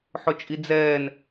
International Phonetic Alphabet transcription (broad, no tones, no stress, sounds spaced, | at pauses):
ħ ʊ t͡ʃʼ i d͡z ɛː n